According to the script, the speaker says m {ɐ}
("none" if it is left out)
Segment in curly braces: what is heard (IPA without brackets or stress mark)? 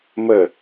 ə